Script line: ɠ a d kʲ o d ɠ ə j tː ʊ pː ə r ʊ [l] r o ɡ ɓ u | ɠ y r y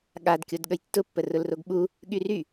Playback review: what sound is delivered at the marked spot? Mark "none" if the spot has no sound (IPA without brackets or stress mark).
l